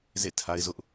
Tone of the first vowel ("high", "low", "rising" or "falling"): falling